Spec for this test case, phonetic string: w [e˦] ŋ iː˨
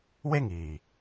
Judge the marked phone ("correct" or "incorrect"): correct